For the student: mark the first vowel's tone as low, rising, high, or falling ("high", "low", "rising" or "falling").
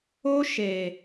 high